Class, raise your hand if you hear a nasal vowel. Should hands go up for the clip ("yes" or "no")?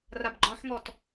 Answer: yes